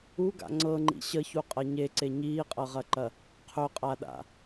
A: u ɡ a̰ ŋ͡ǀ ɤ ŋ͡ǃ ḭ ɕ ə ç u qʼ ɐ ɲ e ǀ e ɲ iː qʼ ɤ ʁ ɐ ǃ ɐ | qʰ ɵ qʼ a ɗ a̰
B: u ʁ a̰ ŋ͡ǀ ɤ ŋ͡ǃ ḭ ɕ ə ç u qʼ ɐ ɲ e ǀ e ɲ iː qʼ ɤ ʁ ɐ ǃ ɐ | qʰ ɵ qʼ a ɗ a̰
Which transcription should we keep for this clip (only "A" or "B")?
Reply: A